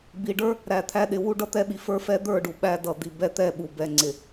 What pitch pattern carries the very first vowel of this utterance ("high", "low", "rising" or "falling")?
low